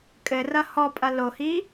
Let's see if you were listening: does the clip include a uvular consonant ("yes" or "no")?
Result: no